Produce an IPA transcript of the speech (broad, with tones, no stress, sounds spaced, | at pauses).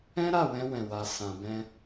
ɛ̃˦ ɾ a˦˨ w ɛ̃˧ w ɛ̃˨ w a˨ s ã˨ b ɛ̃˧